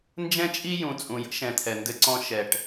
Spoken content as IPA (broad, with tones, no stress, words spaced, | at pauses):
nd͡ʒɛ̃˦t͡ʃʼi˦ jũ˨ t͡sʼũ˨jə̰˦ʃɛ̃˨t̪ʰɛ˨ ndɘ˦ǀɔ̃˦ ʃɛ˨ʈ